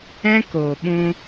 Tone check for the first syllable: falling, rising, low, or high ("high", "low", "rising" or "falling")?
high